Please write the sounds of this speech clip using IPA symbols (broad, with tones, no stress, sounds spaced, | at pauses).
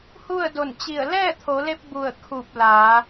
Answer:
h u˥˨ ə̯ d o˧˩ n t͡ɕ i˧˩ ə̯ l ɛː˥˨ t̪ʰ o˩˧ l e˧ p̚ b u˧˩ ə̯ kʰ u˧˩ p̚ l aː˩˧